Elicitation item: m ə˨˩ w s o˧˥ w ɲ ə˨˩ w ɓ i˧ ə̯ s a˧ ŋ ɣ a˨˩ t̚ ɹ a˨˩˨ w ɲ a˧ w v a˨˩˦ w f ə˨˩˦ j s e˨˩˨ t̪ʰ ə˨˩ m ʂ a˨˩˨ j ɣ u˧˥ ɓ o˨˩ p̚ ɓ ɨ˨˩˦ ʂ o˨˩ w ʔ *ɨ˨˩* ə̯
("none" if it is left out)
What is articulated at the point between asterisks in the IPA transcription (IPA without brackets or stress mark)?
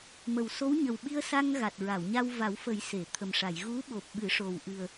ɨ˨˩